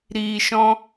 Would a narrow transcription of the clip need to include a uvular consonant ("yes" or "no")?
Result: no